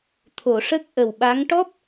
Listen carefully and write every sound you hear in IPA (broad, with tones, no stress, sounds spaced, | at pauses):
t̪ʰ o˨˩˨ ʂ ə˦˥ k̚ ʔ ə˨˩ w ɓ a˧˥ ŋ ʈ ɔ˦˥ p̚